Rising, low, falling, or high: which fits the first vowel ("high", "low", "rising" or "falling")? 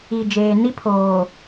low